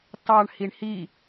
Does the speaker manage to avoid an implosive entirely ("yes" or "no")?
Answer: yes